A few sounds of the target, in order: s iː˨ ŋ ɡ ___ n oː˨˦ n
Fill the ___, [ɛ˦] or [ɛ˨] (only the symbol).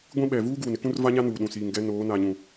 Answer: ɛ˦